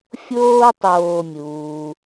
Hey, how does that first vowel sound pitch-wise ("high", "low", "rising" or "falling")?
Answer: high